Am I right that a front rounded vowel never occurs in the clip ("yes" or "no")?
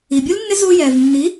yes